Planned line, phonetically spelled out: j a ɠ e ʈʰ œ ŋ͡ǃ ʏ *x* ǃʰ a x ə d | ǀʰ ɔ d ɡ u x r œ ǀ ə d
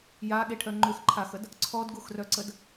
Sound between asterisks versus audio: correct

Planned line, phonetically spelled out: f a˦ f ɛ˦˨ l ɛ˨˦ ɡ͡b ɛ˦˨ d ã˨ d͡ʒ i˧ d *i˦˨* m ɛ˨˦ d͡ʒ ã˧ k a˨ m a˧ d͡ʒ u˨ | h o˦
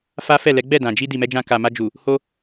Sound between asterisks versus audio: incorrect: i˨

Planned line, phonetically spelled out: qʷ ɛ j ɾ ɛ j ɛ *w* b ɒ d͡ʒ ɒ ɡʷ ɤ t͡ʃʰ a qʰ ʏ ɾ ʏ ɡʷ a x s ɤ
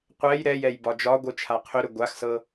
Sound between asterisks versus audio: incorrect: j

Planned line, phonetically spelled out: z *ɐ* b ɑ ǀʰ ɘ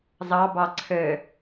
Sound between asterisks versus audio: incorrect: ɑ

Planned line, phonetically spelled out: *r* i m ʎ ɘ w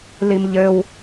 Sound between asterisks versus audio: incorrect: l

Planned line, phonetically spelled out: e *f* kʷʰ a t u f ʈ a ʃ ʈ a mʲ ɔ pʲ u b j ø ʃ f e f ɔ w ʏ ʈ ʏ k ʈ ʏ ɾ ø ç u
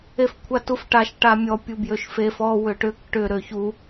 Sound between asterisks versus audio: correct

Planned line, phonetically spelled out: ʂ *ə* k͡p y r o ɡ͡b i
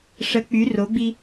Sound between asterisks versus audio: correct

